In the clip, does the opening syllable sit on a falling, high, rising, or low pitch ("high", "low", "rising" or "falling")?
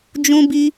high